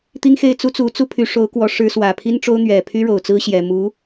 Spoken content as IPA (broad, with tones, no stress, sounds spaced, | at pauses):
t̪ i˥ ŋ x e˥˩ ɪ̯ t͡s u˥ t͡s u˧˥ t͡s u˥ pʰ y˧˥ ʂ o˧˥ ʊ̯ k w ɔ˧˥ ʂ ɻ̩˧˥ s w ä˨˩ pʰ i˥ n ʈ͡ʂ o˥ ʊ̯ n̪ ɥ ɛ˨˩ pʰ y˥ ɻ o˨˩ ʊ̯ t͡s ɹ̩˥ ɕ j ɛ˨˩ m u˧˥